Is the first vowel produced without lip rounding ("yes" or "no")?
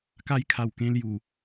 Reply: yes